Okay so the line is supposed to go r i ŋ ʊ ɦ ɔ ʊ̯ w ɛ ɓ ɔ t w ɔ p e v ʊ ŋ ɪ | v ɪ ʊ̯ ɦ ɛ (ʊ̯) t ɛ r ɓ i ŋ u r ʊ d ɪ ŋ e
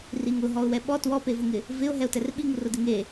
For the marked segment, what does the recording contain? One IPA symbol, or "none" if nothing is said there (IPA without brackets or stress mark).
ʊ̯